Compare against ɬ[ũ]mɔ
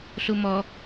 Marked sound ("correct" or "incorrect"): incorrect